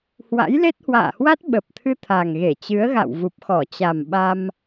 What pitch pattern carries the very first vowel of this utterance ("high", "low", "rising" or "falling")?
rising